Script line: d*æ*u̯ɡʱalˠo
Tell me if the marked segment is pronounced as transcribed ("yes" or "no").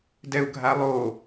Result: no